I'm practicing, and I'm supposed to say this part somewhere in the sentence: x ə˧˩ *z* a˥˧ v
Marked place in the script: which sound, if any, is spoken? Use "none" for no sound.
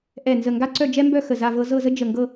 z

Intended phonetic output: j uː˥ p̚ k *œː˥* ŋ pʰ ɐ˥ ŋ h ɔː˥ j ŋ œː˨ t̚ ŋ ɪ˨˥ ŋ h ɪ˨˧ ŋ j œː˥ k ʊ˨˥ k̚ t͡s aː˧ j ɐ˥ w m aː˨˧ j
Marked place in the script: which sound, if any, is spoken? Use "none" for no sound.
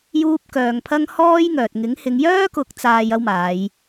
œː˧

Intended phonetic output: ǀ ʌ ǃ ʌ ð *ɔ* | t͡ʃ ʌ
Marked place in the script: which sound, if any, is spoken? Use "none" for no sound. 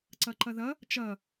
ʌ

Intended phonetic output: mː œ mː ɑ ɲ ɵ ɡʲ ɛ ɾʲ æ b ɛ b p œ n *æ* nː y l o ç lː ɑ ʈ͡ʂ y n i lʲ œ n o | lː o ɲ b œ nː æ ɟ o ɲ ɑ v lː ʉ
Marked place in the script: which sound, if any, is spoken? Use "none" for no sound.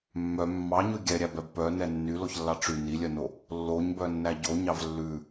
ɛ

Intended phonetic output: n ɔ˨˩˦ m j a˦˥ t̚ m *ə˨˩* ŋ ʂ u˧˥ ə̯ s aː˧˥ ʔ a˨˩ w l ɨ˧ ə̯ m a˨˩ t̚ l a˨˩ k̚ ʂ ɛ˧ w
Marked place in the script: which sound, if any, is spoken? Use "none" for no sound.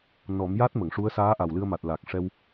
ə˨˩˨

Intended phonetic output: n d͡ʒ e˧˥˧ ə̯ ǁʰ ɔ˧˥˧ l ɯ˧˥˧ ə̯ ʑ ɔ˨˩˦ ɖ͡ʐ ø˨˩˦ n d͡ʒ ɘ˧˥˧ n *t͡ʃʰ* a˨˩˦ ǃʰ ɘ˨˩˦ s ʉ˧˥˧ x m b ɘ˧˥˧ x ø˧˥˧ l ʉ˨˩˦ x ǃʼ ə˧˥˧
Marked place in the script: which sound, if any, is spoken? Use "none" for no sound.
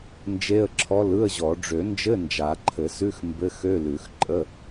d͡ʒ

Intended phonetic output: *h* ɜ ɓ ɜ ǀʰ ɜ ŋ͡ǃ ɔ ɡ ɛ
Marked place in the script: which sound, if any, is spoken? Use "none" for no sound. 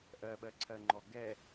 ʔ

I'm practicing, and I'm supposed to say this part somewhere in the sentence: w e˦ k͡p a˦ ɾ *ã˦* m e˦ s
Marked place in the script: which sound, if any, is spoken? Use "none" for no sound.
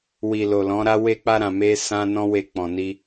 ã˧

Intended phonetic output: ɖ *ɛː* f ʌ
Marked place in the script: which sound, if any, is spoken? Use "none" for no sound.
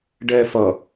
ɛː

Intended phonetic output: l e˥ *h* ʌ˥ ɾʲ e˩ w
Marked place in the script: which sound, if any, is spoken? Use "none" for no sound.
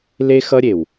x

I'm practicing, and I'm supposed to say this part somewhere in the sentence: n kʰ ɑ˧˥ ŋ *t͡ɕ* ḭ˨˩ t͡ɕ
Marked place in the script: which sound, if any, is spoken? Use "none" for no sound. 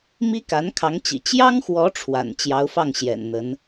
t͡ɕ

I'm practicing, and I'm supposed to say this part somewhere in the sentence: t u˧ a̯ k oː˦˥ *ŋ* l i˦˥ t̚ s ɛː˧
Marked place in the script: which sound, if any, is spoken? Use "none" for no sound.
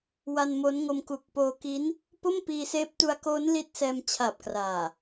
n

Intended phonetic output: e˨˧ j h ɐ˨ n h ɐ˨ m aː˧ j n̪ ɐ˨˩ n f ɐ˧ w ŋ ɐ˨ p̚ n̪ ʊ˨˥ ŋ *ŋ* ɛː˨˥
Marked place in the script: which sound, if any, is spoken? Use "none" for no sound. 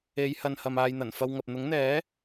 n̪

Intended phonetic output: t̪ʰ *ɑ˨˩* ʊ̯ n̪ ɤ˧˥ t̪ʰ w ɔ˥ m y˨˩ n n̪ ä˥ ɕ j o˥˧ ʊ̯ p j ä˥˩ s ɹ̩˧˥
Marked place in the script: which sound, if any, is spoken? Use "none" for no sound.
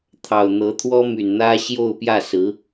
ɑ˨˩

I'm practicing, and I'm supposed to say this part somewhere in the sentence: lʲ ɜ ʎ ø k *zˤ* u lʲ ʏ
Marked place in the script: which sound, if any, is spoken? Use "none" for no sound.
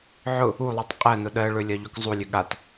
zˤ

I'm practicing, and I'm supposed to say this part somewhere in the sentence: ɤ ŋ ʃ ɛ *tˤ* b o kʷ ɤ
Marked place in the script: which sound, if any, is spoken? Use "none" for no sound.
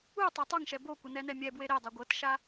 none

